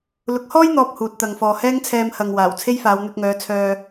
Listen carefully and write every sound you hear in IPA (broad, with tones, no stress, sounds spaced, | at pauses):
l ʊ˨˥ k̚ h ɔː˥ j n̪ ɔː˨ p̚ h uː˧ t̚ t̪ ɐ˧ ŋ f ɔː˧ h ɛː˥ ŋ t͡sʰ ɛː˧ m h ɐ˨ ŋ w aː˨˩ w t͡sʰ e˥ j f aː˨˧ w n̪ ɵ˧ t̚ ŋ œː˨˧ t͡sʰ œː˧